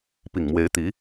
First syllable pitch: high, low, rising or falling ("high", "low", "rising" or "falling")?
low